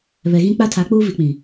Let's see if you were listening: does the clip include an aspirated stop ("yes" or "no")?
yes